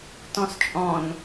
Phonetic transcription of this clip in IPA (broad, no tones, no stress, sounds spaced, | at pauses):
t ɔ̃ s t͡ʃʼ ɔ̃ n